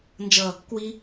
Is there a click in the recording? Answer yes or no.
no